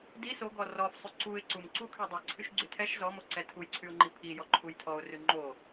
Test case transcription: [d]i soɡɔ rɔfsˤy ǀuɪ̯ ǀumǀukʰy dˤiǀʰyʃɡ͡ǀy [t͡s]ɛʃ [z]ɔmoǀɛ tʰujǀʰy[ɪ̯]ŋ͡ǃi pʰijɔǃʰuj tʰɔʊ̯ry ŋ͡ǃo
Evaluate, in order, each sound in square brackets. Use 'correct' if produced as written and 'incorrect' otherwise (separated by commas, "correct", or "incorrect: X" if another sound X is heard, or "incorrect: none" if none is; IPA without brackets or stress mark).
correct, incorrect: tʰ, correct, incorrect: ʊ̯